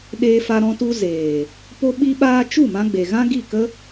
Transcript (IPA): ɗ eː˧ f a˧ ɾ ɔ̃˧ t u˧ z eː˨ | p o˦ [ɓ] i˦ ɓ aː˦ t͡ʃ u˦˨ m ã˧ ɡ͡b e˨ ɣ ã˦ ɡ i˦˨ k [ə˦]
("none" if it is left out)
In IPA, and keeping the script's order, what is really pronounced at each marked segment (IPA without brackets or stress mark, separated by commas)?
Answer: ɓ, ə˦